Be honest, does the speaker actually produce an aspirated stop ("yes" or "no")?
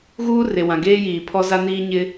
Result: yes